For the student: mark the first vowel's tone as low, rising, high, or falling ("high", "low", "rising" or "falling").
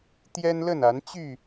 high